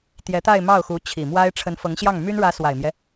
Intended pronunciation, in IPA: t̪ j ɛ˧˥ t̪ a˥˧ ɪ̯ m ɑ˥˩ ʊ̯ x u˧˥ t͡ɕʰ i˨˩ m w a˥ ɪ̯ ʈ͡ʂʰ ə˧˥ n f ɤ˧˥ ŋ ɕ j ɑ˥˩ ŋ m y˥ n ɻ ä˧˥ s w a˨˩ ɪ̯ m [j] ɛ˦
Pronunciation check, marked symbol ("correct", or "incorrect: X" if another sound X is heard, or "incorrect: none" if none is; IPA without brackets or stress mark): correct